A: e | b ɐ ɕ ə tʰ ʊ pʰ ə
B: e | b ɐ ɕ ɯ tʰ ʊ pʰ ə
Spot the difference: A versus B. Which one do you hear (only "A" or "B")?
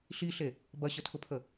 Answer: A